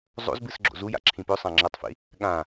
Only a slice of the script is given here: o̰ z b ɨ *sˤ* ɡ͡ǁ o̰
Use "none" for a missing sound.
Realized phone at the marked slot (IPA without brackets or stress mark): s